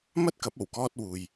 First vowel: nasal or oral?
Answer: oral